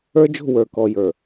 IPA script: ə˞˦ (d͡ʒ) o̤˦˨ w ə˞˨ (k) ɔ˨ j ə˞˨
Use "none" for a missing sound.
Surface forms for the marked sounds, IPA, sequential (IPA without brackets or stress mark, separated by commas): d͡ʒ, k